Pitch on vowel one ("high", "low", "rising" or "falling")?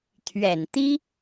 low